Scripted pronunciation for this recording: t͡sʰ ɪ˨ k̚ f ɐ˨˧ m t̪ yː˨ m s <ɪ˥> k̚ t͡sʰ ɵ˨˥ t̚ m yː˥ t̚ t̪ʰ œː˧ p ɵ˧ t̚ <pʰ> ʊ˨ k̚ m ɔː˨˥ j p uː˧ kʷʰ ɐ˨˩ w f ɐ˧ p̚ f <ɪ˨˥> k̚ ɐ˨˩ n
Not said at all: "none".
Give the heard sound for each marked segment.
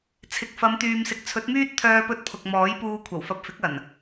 ɪ˨, pʰ, ɪ˨˥

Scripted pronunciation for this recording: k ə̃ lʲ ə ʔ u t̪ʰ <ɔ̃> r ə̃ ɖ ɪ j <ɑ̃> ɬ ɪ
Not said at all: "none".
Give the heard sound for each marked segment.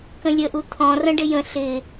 ɔ̃, ə̃

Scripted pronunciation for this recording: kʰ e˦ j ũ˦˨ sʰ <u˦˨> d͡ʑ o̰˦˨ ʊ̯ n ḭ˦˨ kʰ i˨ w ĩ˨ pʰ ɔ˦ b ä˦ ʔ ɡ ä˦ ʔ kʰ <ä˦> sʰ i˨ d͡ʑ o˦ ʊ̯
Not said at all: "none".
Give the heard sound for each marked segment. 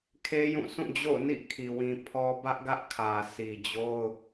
ũ˦˨, ä˨

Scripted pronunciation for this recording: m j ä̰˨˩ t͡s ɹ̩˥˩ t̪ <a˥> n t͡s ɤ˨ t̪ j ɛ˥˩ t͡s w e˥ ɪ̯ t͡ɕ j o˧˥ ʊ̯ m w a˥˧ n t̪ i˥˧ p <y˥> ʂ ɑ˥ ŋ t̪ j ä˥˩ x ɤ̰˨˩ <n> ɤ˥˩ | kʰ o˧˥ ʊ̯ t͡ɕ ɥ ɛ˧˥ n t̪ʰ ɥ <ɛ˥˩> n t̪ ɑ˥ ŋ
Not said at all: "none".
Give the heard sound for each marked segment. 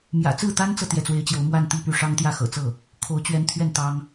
a˥, y˥˩, t͡s, ɛ˥˩

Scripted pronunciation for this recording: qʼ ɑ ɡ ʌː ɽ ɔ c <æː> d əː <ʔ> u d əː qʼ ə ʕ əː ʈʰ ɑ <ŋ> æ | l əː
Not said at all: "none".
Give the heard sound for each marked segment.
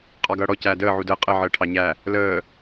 æː, ʕ, ɲ

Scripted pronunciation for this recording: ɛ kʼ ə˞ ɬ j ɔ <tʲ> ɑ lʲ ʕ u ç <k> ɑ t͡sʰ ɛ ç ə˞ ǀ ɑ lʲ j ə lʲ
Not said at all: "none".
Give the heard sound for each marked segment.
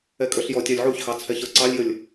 tʲ, x

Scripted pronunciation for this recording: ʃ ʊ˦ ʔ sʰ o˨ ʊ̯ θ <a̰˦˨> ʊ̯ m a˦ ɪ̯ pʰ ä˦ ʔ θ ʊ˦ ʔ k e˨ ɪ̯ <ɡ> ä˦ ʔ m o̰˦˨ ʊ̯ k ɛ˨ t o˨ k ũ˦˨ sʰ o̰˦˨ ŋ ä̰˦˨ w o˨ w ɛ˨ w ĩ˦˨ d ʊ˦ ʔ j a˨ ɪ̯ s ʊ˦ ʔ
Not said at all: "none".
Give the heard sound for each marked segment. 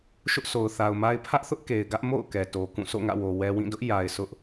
a˨, ɡ

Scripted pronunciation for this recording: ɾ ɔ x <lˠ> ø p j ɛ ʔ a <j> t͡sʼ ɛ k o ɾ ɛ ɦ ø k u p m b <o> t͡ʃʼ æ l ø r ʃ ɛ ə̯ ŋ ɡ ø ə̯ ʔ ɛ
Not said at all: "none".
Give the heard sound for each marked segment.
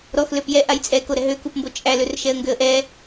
l, j, o

